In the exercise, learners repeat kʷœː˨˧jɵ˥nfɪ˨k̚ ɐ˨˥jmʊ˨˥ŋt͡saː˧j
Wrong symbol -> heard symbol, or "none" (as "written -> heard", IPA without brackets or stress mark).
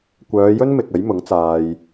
f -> m